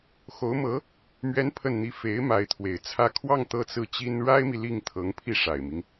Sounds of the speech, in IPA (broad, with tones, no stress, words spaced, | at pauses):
xo˧˥ʊ̯mɤ˧˥ | mɥɛ˧˥n pʰə˥˧nn̪i˥˩ fe˧˥ɪ̯ ma˧˥ɪ̯t̪ʰwe˨˩ɪ̯t͡sʰä˥˧ kʰwɑ˥˧ŋ t̪ɤ˥˧t͡sɹ̩˥˩t͡ɕi˥n ɻa˥ɪ̯mi˨ li˥˩ŋt̪ʰɤ˧˥ŋ pʰi˥˩ʂa˨˩ɪ̯mi˦ŋ